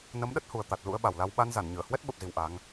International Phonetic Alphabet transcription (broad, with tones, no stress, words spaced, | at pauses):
nə˨˦mɗə˦˥t̚hu˨˩ə̯t̪a˨˩t̚ lṵ˧˥ə̯ɓa˨˩wla˧w ɓa˧n za˧˩nɲɨ˧˩ə̯hwɛ˦˥t̚ ɓə˨˩p̚zi˨˩w ʔa˨˦ŋ